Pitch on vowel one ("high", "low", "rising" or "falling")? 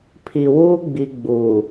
low